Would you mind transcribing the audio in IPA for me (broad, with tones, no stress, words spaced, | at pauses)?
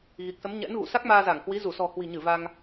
ɣi˨˩k̚sə˨˦mɲɛ̰˧˥nɣṵ˧˨ sa˦˥k̚maː˧za˧˩ŋhwi˨˦ zu˧˩sɔ̤˨˩ hwi̤˨˩ɲɨ˧˩ va˧ŋ